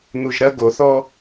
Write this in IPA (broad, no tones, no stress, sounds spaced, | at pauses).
n̪ u ʒ ɾ ɐ ɡ o θ ɔ